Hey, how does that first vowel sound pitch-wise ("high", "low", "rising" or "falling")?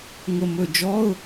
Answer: low